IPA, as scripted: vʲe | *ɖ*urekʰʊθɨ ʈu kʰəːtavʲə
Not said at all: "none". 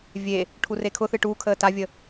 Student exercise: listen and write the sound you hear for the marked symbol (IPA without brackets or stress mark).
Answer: ʈʰ